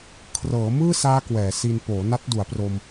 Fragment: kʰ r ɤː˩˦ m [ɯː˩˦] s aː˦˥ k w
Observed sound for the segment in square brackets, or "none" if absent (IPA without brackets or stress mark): ɯː˥˩